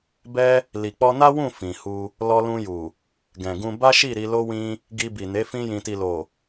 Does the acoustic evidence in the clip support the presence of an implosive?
no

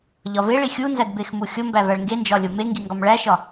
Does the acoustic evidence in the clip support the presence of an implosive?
no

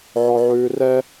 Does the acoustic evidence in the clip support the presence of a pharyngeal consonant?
yes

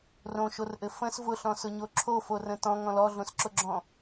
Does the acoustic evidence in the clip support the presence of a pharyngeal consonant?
no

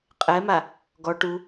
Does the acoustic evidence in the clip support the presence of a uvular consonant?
yes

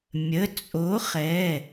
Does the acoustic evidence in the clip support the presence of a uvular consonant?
yes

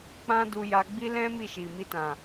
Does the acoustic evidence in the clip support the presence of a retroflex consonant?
no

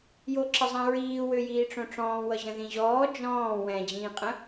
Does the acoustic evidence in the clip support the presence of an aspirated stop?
no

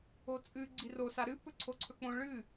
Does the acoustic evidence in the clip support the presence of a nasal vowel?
yes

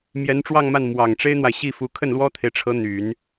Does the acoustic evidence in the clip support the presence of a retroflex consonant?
yes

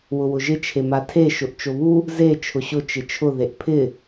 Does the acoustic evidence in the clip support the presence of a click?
no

